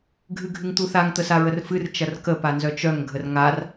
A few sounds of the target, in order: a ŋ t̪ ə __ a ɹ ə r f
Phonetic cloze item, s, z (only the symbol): s